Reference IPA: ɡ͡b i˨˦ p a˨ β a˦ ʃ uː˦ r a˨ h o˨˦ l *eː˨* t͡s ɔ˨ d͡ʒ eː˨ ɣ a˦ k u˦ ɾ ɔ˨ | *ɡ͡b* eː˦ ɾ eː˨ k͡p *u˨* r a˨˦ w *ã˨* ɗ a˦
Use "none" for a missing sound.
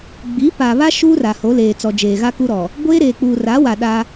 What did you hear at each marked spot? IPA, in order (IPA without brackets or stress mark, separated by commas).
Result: eː˨, ɡʷ, uː˨, a˨